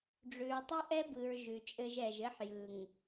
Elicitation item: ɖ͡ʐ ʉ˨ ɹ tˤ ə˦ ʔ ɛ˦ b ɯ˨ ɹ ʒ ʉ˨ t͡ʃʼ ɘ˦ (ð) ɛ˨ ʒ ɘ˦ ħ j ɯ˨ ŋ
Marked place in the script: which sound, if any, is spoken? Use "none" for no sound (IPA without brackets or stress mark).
ʒ